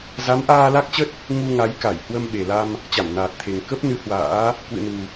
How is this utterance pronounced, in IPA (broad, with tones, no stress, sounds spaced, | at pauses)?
z a˨˦ m ʔ aː˧ l a˦˥ k̚ t͡ɕ ə˦˥ t̚ | ŋ u˧ ŋ a˨˦ j k a˧˩ j h w ə˧ m ɓ e˨˩ l a˧ m | t͡ɕ a˧˩ m n aː˨˩ t̚ t̪ʰ e˨˩ ŋ k ə˦˥ p̚ n ɨ˨˦ h w a̰ː˧˥ | k w ɨ̰˧˨ n u˨˩